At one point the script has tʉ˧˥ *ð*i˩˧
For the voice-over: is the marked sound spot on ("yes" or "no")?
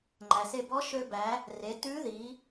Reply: yes